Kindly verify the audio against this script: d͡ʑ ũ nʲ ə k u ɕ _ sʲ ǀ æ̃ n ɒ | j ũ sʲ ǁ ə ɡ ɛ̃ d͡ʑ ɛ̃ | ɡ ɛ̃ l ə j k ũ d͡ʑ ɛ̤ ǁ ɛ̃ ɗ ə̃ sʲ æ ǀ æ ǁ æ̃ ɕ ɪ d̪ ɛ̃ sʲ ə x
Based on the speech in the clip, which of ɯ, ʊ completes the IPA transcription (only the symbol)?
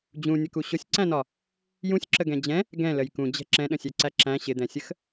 ʊ